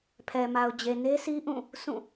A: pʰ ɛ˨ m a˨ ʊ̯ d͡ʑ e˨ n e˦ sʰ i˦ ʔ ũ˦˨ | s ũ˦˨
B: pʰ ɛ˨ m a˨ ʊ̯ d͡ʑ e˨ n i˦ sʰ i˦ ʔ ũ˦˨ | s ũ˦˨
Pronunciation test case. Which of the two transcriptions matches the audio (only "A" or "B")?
A